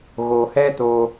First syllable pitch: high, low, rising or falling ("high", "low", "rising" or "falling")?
low